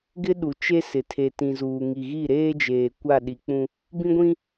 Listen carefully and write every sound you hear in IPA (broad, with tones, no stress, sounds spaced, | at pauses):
ɡ ɪ˦ ɗ u˨ t͡ʃ e˦ s ɪ˨ tʰ e˨ t ĩ˨ z uː˨ ŋ i˨ ɣ i˦˨ ɾ eː˦ d͡ʒ eː˨ kʷ a˦˨ ɗ i˨ k͡p ũ˦ | b ĩ˦ ɡʷ ĩ˦